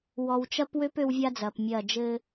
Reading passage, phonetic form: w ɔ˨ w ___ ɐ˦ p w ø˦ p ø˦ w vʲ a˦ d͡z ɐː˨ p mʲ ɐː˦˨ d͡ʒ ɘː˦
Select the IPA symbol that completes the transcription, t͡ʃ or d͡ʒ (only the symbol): t͡ʃ